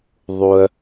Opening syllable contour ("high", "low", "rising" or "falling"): low